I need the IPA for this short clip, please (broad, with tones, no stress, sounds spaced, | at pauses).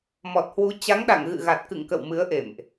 m ɔ˨˩ t̚ h w u˨˦ t͡ɕ a˨˦ ŋ ɗ a̰˧˨ ŋ ɣ ɨ̰˧˨ ɣ a˨˩ t̚ k ɨ̰˧˨ ŋ k ə̰˧˨ w m ɨ˨˦ ə̯ ʔ ḛ˧˨ m ʔ